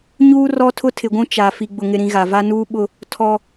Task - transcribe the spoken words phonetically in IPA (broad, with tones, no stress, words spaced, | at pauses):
ɲuː˦ rɔ˦ tʰʊ˦tʰɪ˨ɡʷũ˦ t͡ʃa˨ fi˨ɡ͡bʊ˨ŋɪ˨ɾĩ˨ ɣa˨va˦ nuː˦ɓʊ˦ | tʰɔ˦